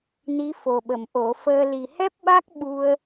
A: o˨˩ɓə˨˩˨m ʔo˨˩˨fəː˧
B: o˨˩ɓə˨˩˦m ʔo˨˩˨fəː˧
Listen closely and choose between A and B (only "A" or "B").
A